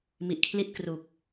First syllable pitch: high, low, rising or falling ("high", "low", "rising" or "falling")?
low